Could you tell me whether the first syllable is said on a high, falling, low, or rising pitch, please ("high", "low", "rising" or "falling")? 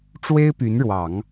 high